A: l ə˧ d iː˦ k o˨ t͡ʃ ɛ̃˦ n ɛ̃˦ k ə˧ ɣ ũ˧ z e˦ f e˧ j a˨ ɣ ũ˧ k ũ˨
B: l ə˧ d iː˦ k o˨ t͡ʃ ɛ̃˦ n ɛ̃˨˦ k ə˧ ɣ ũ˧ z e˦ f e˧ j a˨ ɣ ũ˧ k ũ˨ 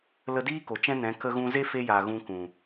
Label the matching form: B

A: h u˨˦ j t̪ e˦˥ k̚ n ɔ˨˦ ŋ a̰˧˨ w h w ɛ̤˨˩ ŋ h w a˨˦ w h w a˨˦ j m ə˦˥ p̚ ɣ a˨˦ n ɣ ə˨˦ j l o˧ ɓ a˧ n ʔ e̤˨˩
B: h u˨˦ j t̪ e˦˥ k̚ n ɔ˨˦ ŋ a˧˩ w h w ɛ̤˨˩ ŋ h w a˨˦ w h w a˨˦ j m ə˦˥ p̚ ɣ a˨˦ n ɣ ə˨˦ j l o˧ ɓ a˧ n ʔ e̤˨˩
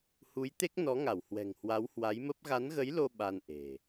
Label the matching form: B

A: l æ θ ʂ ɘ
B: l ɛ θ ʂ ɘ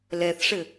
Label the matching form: B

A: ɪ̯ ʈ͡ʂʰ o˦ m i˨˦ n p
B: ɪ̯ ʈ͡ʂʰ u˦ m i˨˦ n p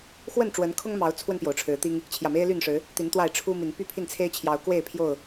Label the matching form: B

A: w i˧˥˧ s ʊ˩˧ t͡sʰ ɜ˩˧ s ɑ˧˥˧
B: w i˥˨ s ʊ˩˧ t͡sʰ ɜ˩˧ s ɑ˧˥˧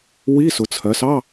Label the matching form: A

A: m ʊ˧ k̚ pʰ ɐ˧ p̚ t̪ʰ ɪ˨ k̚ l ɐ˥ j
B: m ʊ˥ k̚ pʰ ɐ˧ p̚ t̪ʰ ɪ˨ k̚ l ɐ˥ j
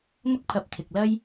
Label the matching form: B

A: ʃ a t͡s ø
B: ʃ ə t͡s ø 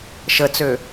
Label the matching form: B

